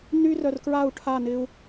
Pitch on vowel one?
high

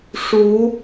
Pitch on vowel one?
rising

